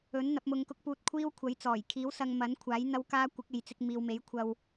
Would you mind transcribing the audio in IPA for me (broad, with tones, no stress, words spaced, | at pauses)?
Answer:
ɵ˨˥n n̪ɐ˨˥p̚mʊ˧ŋkʊ˥k̚puː˧t̚ kʷʰiː˥wkʷʰɐ˨˥jt͡sɔː˨˩j kʰiː˨˥w sɐ˧ŋ mɐ˨˥nkʷʰaː˨˥j n̪ɐ˥wkaː˥ kʷɪ˨˥k̚e˨jt͡sɪ˧k̚ miː˨wme˨˥j kʷʰɐ˧w